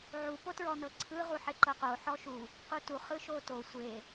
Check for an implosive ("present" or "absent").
absent